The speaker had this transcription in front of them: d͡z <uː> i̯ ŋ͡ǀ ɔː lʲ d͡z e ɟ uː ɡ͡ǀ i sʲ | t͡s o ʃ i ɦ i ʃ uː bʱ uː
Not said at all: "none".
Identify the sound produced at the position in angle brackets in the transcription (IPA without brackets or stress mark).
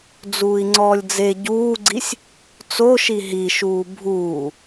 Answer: uː